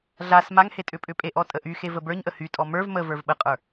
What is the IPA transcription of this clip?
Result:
ɮ a s m a ŋ h e tʼ ʏ pʼ ʏ pʼ e ʔ ɔ tʼ ə ʔ y x e v ə b ə˞ ɲ ʔ ə h y tʼ ɔ m ə˞ v m ə v ə˞ v ɓ ə qʼ ə˞

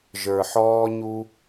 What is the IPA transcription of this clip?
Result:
ʒ ə˞˨ ħ ɔː˧ ɲ u˧

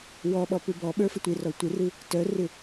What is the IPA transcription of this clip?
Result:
w ɔ ɓ ɔ p u b ɔ ɓ ə˞ f ə tʷ ɪ r ɔ tʷ ɪ r ɯ | t œ r ɪ

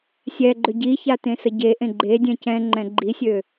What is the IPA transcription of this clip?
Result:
sʲ ɛ ɡ͡ǃ ø ɟ i ç a t ẽ s ə ɟ e ʔ ẽ ɡ͡ǃ e dʲ ɛ̃ c ɛ̃ ŋ͡ǃ ɛ̃ ɡ͡ǃ i sʲ ø

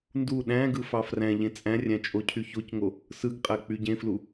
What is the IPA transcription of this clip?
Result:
n d u ɗ æ̃ ɡ ɯ f ɑ f r æ̃ ʎ ẽ t͡sʼ æ̃ rʲ æ̃ t͡ʃʼ o cʰ y ç o c ŋ o | s ɯ ɡ qʼ æ k͡p y ɟ ẽ f l u

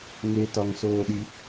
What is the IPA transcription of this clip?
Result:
ŋ e t ɒ ŋ s oː ɗ i

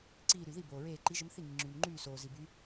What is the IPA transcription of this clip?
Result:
ǀ iː˧˩ ɾ y˩ ð i˥˩ b oː˩ ɹ eː˧˩ ǃ i˨˥ ʒ ə˨˥ m θ i˥˩ ŋ i˩ ŋ͡ǁ yː˩ m ŋ͡ǃ yː˥˩ s oː˩ z i˩ b y˨˥

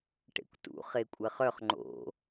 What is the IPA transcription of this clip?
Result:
ʈ ḛ kʷ t ṵ χ e kʷʼ ɜ χ œ χ ŋ͡ǃ o̰

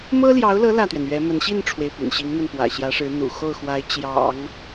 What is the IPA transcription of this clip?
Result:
m ɤ˥ l j ɑ˧˥ ʊ̯ l ɤ˧˥ l ä˥˩ t̪ ɥ ɛ˩ n ɥ ɛ˧˥ m ə˧˥ n ɕ i˥˩ n ʈ͡ʂʰ w e˩ ɪ̯ p y̰˨˩ n ɕ i˧˥ ŋ m ə˥˩ n p w ä̰˨˩ ɕ j ä˧˥ ʂ ɻ̩˧˥ n̪ ṵ˨˩ x o˥˩ ʊ̯ x w a˧˥ ɪ̯ t͡ɕ j ɑ̰˨˩˦ ŋ

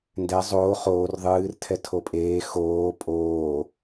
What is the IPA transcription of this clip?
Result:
n d ɛ zˤ oː χ oː r ðˤ ɨː r tʰ ɛ tʰ o pʼ eː x oː pʼ oː

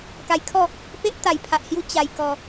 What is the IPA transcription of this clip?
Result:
k a˧ j kʰ ɔ˥˧ | p e˦ ʔ t̪ a˨˩ j pʰ a˨ ʔ h j u˧ t͡ɕ a˨˩ j k ɔ˨˩

